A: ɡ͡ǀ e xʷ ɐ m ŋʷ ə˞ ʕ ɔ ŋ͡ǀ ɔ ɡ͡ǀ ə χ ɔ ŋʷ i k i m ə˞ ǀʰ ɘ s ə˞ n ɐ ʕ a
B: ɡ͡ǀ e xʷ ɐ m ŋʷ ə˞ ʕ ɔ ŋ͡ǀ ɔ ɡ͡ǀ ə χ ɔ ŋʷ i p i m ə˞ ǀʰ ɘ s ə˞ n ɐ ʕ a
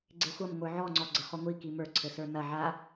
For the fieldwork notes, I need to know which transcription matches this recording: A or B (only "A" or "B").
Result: A